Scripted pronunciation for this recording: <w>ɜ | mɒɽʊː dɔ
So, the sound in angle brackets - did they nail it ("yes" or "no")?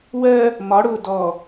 yes